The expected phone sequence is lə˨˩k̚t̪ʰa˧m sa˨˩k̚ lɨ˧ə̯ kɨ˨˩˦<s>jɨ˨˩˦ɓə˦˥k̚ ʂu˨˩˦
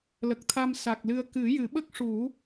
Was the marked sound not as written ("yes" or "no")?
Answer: yes